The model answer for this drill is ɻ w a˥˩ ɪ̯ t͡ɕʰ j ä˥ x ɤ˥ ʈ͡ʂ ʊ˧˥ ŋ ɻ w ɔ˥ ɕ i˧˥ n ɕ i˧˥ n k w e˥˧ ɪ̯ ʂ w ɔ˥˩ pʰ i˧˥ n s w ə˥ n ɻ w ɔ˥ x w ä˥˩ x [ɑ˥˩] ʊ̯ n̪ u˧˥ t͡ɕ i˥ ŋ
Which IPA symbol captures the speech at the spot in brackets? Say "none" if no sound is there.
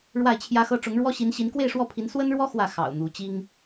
ɑ̰˨˩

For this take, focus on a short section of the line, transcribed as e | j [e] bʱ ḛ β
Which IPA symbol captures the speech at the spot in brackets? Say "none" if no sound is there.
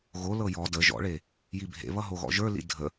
i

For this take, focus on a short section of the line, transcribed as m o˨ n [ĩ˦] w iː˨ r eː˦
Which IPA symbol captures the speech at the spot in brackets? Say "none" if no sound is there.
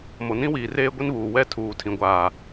ĩ˦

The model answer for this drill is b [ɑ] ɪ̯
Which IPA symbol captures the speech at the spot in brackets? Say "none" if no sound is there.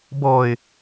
ɔ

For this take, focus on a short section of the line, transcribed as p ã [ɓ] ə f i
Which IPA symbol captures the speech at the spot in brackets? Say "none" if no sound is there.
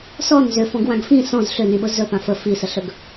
f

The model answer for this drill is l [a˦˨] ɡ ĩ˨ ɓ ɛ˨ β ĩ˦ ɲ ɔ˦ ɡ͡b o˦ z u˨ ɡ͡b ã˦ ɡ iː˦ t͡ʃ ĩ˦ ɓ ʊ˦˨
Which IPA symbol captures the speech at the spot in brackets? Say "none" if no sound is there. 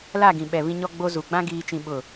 a˦˨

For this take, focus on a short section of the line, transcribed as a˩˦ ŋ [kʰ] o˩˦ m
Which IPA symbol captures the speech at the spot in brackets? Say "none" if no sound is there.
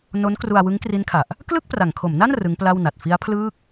kʰ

